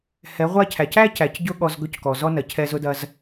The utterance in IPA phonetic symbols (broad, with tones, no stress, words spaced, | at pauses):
hɛ˨˦ʁʷa˦cʰæ˨c æ˦cæ˨c ɟʊ˦ɠɔ˧z ɡɵ˦ckɔ˨ zɔ˦nɐ˨cʰɛ˧ zʊ˦dɐ˦z